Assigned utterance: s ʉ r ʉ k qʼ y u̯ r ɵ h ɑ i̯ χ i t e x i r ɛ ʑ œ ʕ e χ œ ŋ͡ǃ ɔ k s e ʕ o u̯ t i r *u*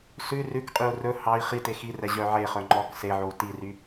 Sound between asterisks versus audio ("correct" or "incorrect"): incorrect